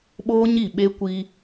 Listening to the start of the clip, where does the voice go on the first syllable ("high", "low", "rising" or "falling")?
high